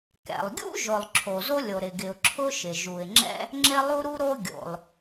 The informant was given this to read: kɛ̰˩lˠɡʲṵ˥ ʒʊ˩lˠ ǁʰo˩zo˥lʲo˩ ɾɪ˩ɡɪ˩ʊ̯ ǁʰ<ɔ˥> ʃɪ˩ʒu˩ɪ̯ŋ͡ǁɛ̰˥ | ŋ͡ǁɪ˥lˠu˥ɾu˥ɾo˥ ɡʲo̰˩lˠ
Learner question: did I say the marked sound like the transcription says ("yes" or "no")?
no